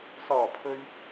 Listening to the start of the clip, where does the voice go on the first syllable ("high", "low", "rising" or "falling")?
low